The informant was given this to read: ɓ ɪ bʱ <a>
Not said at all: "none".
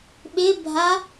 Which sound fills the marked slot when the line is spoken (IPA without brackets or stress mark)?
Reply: a